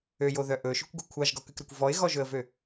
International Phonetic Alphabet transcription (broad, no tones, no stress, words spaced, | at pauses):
øjoðœ ʔɵʃøkʷɡo kʷʰɑʒɡɔkʉkɾœkʷ vɔɪ̯ɣɔʒɵə̯vø